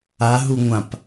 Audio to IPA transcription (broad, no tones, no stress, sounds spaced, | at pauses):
a ɦ u ŋʷ ã p